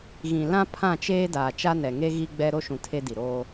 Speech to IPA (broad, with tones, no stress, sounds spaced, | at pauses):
ɣ ĩ˨ l ã˦ pʰ ã˦˨ t͡ʃ eː˦ d aː˨ t͡ʃ a˦ n ɛ˨ ŋ e˦ ɣ i˦ ɡ͡b ɛ˦ ɾ o˦ ʃ ũ˨ tʰ e˦ d i˨ ɾ oː˦